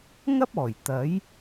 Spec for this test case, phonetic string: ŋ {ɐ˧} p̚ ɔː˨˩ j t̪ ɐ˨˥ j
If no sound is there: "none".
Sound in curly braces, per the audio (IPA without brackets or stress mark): ɐ˥